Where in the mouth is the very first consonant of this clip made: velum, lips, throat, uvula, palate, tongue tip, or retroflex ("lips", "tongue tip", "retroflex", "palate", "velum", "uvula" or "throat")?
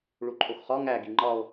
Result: retroflex